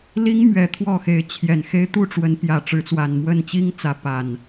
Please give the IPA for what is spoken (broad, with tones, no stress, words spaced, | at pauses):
li˦ŋmɥɛ˨˦ t̪ʰwɔ˥˨xe˨˦ɪ̯ t͡ɕʰjɛ˨˩n xe˦ɪ̯ t̪u˥˨ʈ͡ʂwə˨˦n pjä˨˩ ʈ͡ʂɻ̩˨˦t͡swa˨˩nmwə˥˨n t͡ɕi˦ŋt͡sä˨˦ pa˨˩n